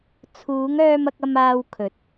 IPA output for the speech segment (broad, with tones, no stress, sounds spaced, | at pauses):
t͡sʰ uː˨˧ ŋ œː˧ m ɐ˧ k̚ ɐ˧ m aː˧ w kʰ ɵ˨˥ t̚